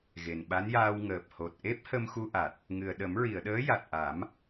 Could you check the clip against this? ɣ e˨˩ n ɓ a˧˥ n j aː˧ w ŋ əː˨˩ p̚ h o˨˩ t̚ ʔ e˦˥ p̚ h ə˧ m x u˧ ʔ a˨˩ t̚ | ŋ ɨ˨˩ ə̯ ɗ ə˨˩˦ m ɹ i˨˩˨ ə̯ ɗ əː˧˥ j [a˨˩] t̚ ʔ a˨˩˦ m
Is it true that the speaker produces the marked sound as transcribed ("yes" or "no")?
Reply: yes